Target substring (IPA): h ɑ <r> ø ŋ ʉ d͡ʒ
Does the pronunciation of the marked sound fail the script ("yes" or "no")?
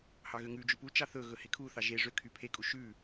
yes